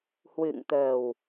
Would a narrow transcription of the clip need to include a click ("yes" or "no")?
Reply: no